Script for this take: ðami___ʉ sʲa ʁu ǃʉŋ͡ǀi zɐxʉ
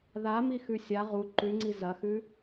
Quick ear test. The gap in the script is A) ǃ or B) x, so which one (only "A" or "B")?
B